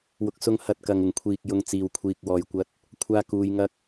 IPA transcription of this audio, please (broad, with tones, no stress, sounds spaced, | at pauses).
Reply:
w ʊ˨ k̚ s ʊ˧ ŋ h ɐ˧ t̚ k ɐ˨ ŋ ɪ˨˩ ŋ kʷʰ iː˨ k̚ j ʊ˧ ŋ t͡s iː˨ w kʷʰ iː˧ k̚ w ɔː˧ j kʷ ɐ˥ t̚ | kʷʰ aː˥ k uː˧ j ŋ ɐ˥ k̚